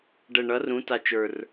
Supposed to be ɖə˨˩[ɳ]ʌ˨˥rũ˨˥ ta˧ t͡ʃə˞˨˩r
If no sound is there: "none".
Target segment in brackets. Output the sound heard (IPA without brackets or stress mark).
ɳ